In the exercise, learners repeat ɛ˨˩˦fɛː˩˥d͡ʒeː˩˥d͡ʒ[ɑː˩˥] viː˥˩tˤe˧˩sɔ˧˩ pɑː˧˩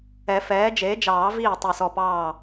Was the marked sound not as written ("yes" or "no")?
yes